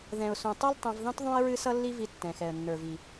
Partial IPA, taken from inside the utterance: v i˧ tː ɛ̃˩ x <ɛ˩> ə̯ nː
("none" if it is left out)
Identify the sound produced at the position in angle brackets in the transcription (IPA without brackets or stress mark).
ɛ˩